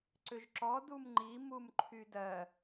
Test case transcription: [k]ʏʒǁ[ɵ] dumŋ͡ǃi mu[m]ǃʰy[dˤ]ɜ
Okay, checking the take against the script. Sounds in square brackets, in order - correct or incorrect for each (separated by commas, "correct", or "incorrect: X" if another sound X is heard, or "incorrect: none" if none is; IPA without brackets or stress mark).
incorrect: ǀ, incorrect: ɔ, correct, incorrect: d